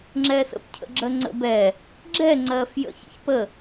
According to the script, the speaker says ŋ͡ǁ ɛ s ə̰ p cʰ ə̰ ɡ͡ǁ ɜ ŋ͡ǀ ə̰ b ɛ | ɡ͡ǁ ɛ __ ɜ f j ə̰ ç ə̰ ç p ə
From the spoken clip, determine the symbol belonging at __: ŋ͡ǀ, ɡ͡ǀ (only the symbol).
ŋ͡ǀ